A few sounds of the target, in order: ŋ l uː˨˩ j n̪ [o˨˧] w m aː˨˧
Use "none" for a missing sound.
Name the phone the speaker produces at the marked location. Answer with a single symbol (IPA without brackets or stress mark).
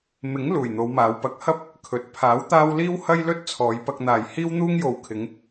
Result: o˨˧